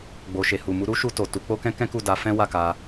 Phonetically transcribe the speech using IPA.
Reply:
ɡ͡b o˨ ʃ e˨ h u˨ m u˨˦ ɾ u˦ ʃ u˧ t o˨ t u˨˦ k͡p o˦ k ɛ̃˦ k ɛ̃˦ k u˦˨ d a˨˦ f ɛ̃˦ w a˦˨ k a˧

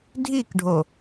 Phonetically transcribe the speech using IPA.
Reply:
dʱ i k ɖʱ o

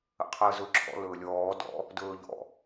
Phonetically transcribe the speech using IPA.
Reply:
ə̰ qʰ əː z ɵ ǁʰ ɔ̰ l ɵː lʲ ɔː d ɔ̰ | d ɵː ʎ ɔ̰

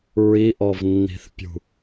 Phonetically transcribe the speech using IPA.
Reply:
ɹ i ʔ ɔ v nː i̤ θ pʲ ṳ

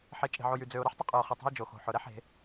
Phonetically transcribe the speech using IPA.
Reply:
ħ e˨ t͡ʃʼ e̤˨ ʕ o˨ j y˨ d͡z ø˨ ʊ̯ ɾ ɯ˦ ħ tˤ ə˦ qʼ ɯ˨ ʊ̯ χ ə˨ tˤ ə̤˦ ɪ̯ d͡ʒ o˨ x o̤˨ ħ ʊ˨ ɾ ɛ˦ ħ e̤˨˦

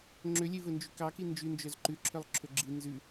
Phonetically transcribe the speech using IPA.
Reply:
ŋ͡ǁ ø lʲ e v ɵ n d͡ʒ y k ɑ k i n d͡ʒ ʉ n d͡ʒ œ z ǃ ʉ ǁʰ œ lˠ ǁʰ ɵ ɡ͡ǁ i n z ʉ

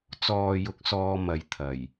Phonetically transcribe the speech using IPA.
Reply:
t͡s ɔː˨ j ʊ˨˥ k̚ s ɔː˧ m ɐ˨ j t̪ʰ ɐ˨˩ j

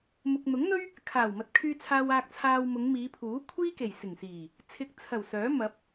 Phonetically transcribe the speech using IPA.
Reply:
m ʊ˨ k̚ n̪ ʊ˨˥ ŋ n̪ ɵ˥ ɥ | kʰ aː˨˩ w m ɐ˨ t̚ kʰ yː˧ t͡sʰ aː˧ w aː˧ k̚ t͡sʰ aː˧ w m ʊ˨˧ ŋ m iː˨˧ pʰ uː˨˥ kʷʰ iː˥ k e˨˩ j s ɪ˨˩ ŋ s iː˨˩ | t͡sʰ ɪ˨ k̚ t͡sʰ ɐ˨˩ w s œː˨˥ m ɐ˨˥ p̚

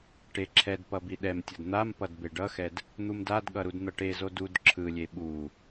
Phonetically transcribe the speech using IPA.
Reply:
ʈ e ǁʰ ɛ d p ʌ b i ɗ ɛ m tʲ ʌ d n̪ a m p ʌ d b e ɖ ʌ x ɛ d | n̪ u m d a d ɠ ʌ ɾ u d n̪ ʌ ʈ e z o d u d ǁʰ ɯ lʲ e ɓ u

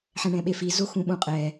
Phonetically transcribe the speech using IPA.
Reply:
ħ ɛ̃ ɳ ɛ̃ ɓ e f i z o x ũ ɓ ũ qʼ ɛ

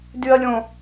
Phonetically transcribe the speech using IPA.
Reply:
d y ɐ̯ lʲ õ

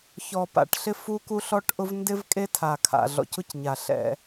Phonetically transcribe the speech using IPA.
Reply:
ç ɔ˨ p a̰˨ ʈ ɬ ɪ˦ f u˦ k u˦ ɬ ɔ˦ ʈ ʔ ʊ˦ v n d ɪ˦ v kʼ e˦ tʰ a˨ kʰ a̰˨ ɮ ɔ̰˨ c ʊ˦ c ɲ a˨ ɬ ɛ̰˦

